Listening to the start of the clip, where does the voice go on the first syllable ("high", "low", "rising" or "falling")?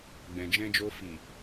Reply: low